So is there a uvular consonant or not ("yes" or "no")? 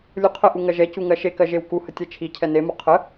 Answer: yes